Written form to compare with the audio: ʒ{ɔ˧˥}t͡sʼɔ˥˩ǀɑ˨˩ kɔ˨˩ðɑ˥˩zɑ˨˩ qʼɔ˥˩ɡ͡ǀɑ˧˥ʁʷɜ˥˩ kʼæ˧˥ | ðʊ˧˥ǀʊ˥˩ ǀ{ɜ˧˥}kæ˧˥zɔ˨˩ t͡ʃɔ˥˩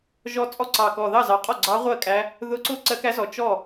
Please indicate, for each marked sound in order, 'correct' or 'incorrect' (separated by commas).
correct, correct